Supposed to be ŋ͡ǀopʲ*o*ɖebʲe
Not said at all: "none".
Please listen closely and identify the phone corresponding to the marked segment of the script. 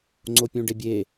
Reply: õ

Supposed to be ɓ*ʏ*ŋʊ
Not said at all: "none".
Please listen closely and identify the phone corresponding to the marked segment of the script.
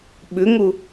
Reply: ʏ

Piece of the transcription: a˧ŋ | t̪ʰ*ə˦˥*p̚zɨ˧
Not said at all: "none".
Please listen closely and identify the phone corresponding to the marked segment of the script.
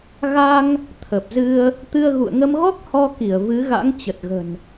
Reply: ə˨˩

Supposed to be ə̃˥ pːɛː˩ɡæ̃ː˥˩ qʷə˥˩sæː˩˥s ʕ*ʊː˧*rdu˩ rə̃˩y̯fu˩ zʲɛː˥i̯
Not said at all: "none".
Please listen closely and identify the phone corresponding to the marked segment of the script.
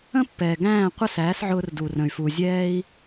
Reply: ʊː˧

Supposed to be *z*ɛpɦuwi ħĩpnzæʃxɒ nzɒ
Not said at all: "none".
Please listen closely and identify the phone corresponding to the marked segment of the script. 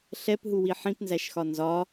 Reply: ɬ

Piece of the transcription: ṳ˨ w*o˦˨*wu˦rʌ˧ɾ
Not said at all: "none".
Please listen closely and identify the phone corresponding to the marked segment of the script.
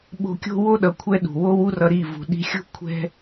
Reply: o˦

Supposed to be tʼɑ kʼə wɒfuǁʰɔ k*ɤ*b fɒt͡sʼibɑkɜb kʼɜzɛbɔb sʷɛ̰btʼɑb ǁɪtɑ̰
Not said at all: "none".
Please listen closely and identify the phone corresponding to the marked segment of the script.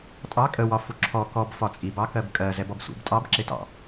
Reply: ɔ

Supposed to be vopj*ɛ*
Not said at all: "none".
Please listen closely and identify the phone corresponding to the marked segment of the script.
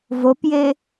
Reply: e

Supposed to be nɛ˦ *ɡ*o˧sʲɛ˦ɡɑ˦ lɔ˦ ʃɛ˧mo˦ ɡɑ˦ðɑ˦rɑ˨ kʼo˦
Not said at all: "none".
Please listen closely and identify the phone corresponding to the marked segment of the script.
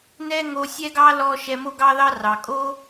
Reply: ŋ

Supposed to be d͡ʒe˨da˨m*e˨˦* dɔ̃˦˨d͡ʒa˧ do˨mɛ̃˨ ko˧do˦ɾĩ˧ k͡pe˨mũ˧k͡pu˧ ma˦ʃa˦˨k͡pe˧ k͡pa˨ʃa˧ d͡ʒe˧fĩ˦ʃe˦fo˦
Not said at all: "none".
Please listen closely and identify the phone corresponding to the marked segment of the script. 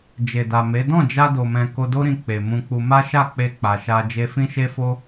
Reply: e˨˦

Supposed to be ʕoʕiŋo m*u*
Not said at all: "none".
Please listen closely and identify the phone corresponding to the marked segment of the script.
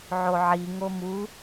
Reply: u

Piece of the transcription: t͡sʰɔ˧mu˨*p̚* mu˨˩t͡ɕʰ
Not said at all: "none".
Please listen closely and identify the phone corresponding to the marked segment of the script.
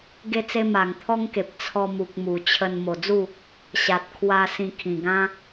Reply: k̚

